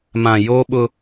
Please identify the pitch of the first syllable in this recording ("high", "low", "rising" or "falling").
low